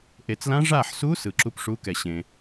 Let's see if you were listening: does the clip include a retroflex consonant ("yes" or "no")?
yes